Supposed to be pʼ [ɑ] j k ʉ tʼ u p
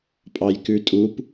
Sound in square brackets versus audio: correct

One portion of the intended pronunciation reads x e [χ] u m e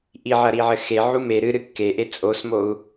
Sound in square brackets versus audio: incorrect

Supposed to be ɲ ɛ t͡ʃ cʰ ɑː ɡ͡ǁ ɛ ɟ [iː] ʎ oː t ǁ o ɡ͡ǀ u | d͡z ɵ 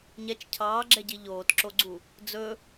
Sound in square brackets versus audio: incorrect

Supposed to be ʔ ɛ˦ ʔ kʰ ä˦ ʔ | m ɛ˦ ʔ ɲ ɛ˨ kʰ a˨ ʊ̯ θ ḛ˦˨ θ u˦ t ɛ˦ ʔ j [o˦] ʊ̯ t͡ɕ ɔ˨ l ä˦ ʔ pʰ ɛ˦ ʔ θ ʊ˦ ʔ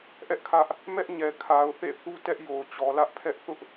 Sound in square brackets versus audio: incorrect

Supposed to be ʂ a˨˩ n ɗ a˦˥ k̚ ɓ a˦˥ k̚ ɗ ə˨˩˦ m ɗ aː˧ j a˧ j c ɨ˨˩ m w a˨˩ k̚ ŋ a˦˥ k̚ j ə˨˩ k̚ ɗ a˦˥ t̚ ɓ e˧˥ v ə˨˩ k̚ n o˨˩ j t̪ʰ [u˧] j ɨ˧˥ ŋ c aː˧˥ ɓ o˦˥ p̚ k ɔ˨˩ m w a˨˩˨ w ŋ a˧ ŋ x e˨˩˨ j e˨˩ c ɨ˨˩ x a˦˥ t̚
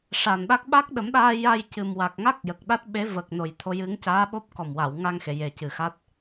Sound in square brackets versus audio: incorrect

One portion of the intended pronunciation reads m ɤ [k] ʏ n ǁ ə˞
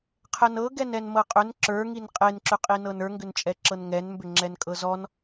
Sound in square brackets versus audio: incorrect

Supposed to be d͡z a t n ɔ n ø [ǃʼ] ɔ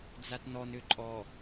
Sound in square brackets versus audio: correct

